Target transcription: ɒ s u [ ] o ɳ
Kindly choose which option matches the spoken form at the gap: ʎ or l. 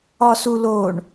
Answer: l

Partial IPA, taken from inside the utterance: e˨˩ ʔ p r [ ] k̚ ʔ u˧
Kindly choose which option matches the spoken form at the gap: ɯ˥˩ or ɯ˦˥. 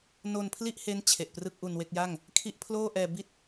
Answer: ɯ˥˩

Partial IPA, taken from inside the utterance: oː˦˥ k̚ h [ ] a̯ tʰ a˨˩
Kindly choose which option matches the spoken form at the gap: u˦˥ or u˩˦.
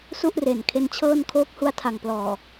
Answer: u˦˥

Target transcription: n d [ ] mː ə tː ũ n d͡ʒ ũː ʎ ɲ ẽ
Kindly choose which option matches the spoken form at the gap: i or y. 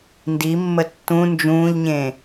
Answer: i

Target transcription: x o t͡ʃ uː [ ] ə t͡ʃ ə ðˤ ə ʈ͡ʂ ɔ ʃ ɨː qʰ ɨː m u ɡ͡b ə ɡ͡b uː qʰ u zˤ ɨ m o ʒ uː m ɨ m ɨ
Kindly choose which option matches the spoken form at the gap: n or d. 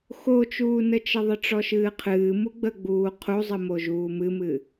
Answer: n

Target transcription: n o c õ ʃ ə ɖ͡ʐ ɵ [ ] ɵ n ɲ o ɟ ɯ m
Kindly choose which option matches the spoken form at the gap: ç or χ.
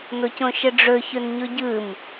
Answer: ç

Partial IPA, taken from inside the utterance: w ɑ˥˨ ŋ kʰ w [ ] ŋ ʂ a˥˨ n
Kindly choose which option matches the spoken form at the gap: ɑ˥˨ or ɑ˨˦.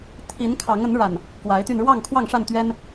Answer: ɑ˥˨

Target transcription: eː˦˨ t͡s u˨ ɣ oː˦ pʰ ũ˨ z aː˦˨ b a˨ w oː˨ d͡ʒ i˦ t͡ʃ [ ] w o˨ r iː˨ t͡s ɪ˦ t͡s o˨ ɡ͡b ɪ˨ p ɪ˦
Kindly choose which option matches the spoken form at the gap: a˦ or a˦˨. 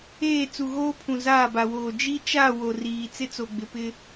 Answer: a˦˨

